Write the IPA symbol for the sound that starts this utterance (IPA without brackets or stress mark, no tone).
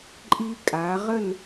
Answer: ǃʼ